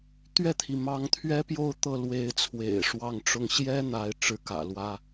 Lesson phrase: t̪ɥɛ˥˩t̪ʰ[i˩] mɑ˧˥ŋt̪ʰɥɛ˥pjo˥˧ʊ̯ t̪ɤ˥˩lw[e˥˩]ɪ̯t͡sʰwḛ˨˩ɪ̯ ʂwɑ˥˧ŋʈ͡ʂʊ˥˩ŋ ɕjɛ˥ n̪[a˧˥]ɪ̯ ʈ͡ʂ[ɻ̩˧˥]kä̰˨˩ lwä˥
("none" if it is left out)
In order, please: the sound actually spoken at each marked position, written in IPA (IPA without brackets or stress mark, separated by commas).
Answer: i˩, e˧˥, a˥, ɻ̩˥